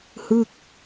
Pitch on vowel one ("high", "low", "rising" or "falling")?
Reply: falling